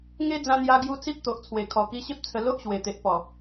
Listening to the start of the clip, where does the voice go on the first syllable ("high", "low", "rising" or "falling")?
high